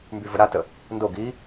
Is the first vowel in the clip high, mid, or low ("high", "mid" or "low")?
high